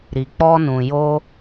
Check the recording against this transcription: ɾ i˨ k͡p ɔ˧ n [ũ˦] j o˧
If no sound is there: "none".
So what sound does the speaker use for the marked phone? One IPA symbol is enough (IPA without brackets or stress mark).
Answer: ũ˨